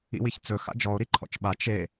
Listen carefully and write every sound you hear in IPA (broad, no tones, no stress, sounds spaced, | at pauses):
ḭ w i ç t͡s ɵ x a̰ d͡ʒ ɔ o̯ ɾ i ǃʰ ɔ̰ t͡ʃ ɓ a t͡ʃ e